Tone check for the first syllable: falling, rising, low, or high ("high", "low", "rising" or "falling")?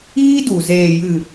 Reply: high